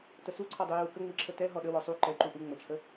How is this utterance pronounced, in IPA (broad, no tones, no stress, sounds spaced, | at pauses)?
t ə s u ǀʰ ɔ dˤ u j u k ə ŋ͡m i ǁʰ ə t ɛ ɦ ɔ ɗ ə w ɔ sˤ u ǃ ɛ ǃ u ʔ u ŋ͡m ə t͡ʃʰ ə